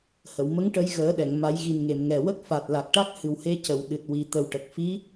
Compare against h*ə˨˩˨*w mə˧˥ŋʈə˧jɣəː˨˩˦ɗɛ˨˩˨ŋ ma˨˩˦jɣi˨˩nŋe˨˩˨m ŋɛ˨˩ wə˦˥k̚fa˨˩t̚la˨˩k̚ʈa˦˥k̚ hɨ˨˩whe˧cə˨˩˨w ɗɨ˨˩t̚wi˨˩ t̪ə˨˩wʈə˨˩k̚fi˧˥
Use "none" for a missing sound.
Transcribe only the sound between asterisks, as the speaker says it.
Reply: ə˨˩˨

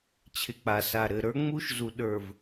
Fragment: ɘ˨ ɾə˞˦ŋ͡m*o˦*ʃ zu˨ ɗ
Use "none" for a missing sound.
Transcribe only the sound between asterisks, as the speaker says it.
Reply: u˦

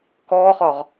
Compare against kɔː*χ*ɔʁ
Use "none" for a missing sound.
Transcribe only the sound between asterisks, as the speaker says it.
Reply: χ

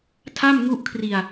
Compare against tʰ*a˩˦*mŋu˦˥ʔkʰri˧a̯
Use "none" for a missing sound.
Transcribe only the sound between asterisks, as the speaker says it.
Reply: a˥˩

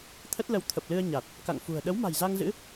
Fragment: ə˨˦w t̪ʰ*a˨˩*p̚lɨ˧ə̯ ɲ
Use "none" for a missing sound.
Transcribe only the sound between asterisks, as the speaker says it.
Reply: ə˨˩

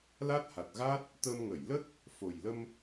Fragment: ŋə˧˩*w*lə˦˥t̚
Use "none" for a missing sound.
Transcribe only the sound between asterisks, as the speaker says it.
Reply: j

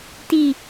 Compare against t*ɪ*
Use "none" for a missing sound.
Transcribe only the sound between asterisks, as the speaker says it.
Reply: i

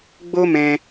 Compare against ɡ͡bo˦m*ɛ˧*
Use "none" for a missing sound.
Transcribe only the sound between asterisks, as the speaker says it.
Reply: ɛ̃˧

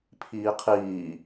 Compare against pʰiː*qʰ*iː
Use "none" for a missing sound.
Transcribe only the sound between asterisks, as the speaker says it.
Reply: qʰ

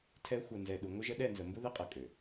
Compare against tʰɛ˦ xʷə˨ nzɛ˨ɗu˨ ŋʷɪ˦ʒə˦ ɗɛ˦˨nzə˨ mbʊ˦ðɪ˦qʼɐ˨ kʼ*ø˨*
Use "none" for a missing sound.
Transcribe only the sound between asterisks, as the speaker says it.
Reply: ø˨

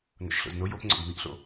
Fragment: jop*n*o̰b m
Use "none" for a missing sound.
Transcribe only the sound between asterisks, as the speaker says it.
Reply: ŋ͡ǀ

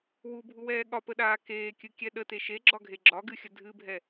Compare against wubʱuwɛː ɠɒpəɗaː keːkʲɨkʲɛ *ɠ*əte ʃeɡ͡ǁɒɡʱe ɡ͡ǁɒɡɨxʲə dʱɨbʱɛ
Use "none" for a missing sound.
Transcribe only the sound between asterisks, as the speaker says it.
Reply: ɗ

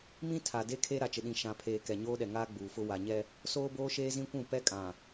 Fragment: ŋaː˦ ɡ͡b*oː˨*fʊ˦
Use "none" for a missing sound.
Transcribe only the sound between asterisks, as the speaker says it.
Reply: uː˨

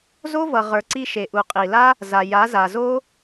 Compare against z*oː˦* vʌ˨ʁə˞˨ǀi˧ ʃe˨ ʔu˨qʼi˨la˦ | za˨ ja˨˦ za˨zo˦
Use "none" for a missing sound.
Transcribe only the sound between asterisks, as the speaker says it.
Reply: o˦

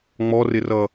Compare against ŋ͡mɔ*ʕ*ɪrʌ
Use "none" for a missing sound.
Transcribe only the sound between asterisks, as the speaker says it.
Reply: r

